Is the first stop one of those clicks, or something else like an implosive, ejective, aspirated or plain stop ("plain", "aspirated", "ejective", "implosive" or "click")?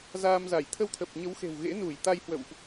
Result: aspirated